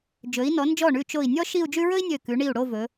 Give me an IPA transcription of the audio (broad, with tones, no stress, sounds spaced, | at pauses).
d͡ʒ ɵ˩˧ i̯ n ɔ˩˧ n d͡ʒ ɔ˧˩ ɳ ʉ˧˩ t͡ʃ o˧˩ i̯ nʲ ɔ˥ ʃ i˥˧ u̯ d͡ʒ ʉ˥ ɹ ɵ˥ i̯ nʲ ø˧˩ k ʉ˩˧ ɳ i˧˩ u̯ ɽ o˥˧ v ɵ˩˧